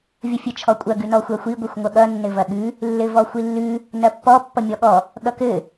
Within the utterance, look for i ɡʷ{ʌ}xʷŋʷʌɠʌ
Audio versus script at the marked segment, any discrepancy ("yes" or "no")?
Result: no